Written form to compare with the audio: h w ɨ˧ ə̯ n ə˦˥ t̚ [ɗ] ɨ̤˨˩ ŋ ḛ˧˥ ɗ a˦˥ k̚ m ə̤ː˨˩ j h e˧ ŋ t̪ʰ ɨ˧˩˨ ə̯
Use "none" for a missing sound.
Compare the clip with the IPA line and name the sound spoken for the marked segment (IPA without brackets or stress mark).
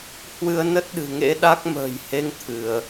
ɗ